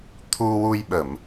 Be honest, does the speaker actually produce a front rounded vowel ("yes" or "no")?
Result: no